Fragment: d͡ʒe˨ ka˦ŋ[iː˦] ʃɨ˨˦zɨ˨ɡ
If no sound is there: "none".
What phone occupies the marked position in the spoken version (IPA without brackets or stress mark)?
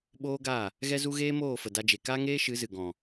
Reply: eː˦